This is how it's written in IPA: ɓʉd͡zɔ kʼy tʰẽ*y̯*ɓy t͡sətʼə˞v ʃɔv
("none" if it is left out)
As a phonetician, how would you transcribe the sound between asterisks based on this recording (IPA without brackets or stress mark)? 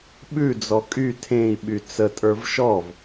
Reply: i̯